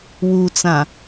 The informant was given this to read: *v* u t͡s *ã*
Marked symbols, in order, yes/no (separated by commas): no, yes